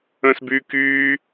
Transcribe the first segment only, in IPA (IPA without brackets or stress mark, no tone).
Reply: ə̃ː